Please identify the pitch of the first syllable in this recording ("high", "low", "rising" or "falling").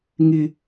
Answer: high